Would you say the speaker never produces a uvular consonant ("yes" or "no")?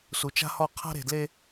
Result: no